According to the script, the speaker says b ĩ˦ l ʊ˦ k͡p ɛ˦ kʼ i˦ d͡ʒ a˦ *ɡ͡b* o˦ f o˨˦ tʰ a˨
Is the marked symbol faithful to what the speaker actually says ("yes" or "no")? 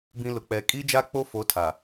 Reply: no